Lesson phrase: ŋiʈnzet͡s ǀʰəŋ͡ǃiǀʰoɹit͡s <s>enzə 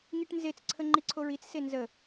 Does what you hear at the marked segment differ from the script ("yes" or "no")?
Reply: no